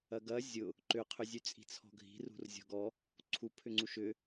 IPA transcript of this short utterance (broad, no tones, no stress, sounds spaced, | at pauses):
ɐ ɡ ɐ zʲ ʊ | ǃ ʏ qʰ ʏ zʲ ʉ t͡sʼ i̤ t͡sʰ ɔ̤ ɡʱ i̤ r ṳ r zʲ ɔ̤ ɡ ɔ | ǀʰ u pʰ ʏ ŋ͡ǀ u ʃ ʏ